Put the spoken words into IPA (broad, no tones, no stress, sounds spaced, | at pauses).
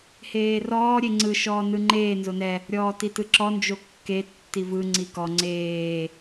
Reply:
h eː r ɔː ɾʲ e ŋ͡ǀ ɯ ʃ ɔː n ɯ ŋ͡ǃ eː n z o n ɛ | ɾʲ ɔː t i t ɯ ǁ ɔ n d͡ʒ o kː e tː i v ɯ ŋ͡ǀ i k ɔ ŋ͡ǀ eː